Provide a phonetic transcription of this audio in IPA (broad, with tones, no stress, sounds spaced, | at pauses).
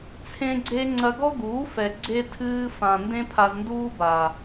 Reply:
t͡sʰ ẽ˦ ɡ͡ǀ e˦ ŋ͡ǀ ɐ˧ ɡ ɔ˦ ɡ uː˨˦ f ɛ˨ ɡ͡ǀ e˧ tʰ ɨː˧ f ã˨ n d ẽ˦ pʰ a˧ z n d uː˦ b a˨